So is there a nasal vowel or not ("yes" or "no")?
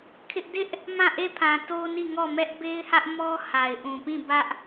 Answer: yes